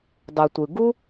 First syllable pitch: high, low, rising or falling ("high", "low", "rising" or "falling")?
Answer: low